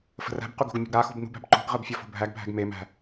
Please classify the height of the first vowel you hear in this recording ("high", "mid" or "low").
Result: mid